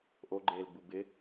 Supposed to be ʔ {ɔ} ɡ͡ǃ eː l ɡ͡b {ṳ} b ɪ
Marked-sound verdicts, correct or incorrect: incorrect: o, incorrect: u

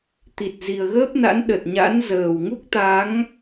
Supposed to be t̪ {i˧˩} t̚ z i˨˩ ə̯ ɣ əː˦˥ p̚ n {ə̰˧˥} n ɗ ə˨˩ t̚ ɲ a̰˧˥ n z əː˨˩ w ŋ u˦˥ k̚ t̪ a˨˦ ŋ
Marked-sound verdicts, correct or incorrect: incorrect: i˨˩, incorrect: a̰˧˥

